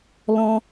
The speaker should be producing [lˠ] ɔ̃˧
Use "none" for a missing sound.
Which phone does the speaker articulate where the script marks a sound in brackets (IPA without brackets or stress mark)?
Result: l